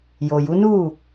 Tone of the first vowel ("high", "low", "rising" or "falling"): low